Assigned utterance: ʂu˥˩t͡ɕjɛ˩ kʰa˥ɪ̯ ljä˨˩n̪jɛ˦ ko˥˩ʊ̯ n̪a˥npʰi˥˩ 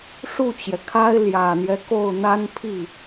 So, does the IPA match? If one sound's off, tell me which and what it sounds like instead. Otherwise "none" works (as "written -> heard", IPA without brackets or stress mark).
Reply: none